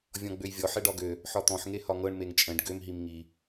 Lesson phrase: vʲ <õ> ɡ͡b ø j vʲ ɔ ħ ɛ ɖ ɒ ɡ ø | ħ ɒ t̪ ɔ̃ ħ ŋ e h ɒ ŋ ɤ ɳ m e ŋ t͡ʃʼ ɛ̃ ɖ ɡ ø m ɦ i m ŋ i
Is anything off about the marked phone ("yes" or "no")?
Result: yes